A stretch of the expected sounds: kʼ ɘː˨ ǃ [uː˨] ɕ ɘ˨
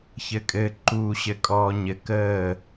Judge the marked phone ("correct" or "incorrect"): correct